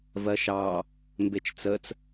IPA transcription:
vɜʃɑ | mbet͡ʃt͡sət͡s

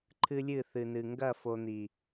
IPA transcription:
ǃʰɨ˦lʲɨ˦˨θɨ˨nɨ˨ ŋɡɐ˦˨fo˨n̪i˨

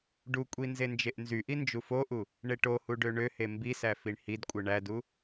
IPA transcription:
ɖukʷʼi nzend͡ʒeʔnzyʔi nd͡ʒufoʔu | ɳeʈohu ɖøɳøhe mbisæ fiɳhidkʷʼɯ ɳædu

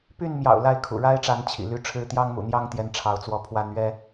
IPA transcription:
py˥˨nmjɑ̰˨˩ʊ̯ la˥˨ɪ̯kʰṵ˨˩ɻa˦ɪ̯ʈ͡ʂa˨˦n t͡ɕʰḭ˨˩ly˦ʈ͡ʂʰɻ̩˦ t̪jɑ˦ŋmṵ˨˩n̪jɑ˥˨ŋt̪jɛ˨˦n ʈ͡ʂʰɑ˨˦ʊ̯t͡swɔ˨˦ pʰwa˨˦nɥɛ˦

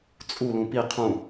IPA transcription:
t͡sʼulũ pi qʰũ

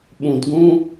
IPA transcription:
ɓũ˨dɡũ˧

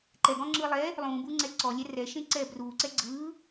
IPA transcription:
ǃɛɡɔ̃ŋ͡ǁɯː lˠɛ | lˠũːbuŋ͡ǀɛ ǀɔlʲɛ rɛʃẽǀɛː bruːǀɛ ɡ͡ǀɯː

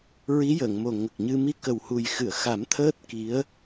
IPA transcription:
ɹi˧˥jəː˨˩˨ŋmo˨˩ ŋə˨˩k̚ɲɨ˧ mi˧kə˨˩whu˨˩j xɨ˨˩˨ə̯xa˨˩˦m t̪ʰəː˦˥t̚ki˧˥ə̯

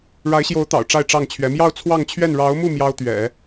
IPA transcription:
ɻa˧˥ɪ̯ɕjo˧˥ʊ̯t̪ɑ̰˨˩ʊ̯ ʈ͡ʂa˥˧ɪ̯ʈ͡ʂɑ˥˩ŋt͡ɕʰɥɛ˧˥ mjɑ˥˧ʊ̯t͡sʰwɑ˥˧ŋt͡ɕʰɥɛ˥˩n ɻɑ˧˥ʊ̯mu˥˩ mjɑ˥ʊ̯t̪ɥɛ̰˨˩˦

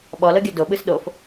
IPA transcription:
ɓɔlɤɡʲɔ doɓɯs ɗof

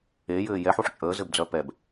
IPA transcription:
ejɘː jɛħuħ t͡ʃʼəːzɘbd͡zœ pɛb

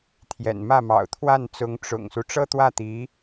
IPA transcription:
t̪ʰjɛ̰˨˩nmä˥˩mɑ̰˨˩ʊ̯ t̪ʰwa˥˩nt͡sʊ˧˥ŋ ʈ͡ʂʊ̰˨˩ŋsu˦ ʈ͡ʂɤ˥t̪wä˥˩ t̪i˧˥

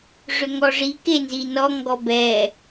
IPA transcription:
ʐʏŋɔʐi kenzinɔ ŋɡɔbɛ

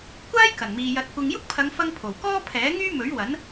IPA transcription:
kʷaː˥jkɐ˨˩nmiː˨ jɐ˧t̚kʷɪ˧ŋ jʊ˥k̚pʰɐ˨˧ŋfɐ˧ŋ pʰo˨˩wkɔː˥ pʰɛː˨˥ŋyː˥mɵ˨˥ɥ wɐ˨˥n

